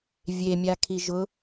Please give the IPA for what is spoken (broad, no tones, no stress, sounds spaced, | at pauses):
vʲ e mʲ a kʰ i ʒ ʊ